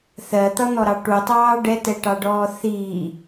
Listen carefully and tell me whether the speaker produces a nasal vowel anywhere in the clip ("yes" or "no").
no